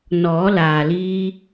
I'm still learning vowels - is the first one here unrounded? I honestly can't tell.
no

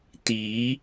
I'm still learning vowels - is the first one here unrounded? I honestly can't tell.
yes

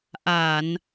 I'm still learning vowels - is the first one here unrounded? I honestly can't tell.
yes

